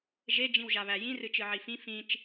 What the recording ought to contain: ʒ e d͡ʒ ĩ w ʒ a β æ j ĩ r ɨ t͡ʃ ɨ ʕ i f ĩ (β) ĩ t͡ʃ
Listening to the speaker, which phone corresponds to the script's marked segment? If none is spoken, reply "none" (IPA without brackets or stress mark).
f